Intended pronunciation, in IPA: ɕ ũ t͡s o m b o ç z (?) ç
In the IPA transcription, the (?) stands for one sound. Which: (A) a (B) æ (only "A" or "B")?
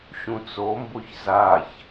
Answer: A